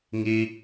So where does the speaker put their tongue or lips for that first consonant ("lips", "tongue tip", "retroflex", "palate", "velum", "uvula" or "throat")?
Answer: velum